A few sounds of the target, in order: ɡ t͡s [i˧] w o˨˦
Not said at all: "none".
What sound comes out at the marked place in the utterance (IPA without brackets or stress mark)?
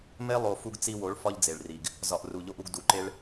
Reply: i˧